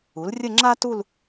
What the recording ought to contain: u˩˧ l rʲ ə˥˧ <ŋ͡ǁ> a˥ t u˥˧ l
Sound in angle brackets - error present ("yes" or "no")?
no